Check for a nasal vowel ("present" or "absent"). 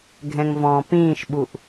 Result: present